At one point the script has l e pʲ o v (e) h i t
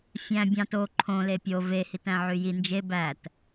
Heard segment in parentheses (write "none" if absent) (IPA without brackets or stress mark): e